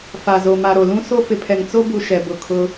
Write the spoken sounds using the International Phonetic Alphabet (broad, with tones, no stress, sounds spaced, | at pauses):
f a˨ z o˨ m a˨ ɾ o˨ l ũ˦ s o˦ f ɪ˨ pʰ ɛ˨ ŋ t͡s o˦ b u˨ ʃ ɛ˨ b ʊ˨ kʰ ʊ˦